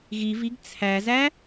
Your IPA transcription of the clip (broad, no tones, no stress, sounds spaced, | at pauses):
ɣ i v i ɡ t͡sʰ æ z æ